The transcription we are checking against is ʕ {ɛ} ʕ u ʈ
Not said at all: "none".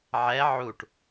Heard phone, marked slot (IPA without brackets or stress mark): ɛ